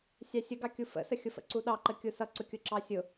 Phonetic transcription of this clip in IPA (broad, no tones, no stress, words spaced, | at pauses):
sʲɑsʲəɡɑkʲu fə̰səxʲʊfə̰ ǀuɗɑǃə kʲusʌǀʊkʲʊ ǁɑsʲʊ